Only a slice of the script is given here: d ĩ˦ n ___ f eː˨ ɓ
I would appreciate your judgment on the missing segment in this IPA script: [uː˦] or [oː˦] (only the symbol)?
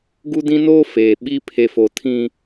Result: oː˦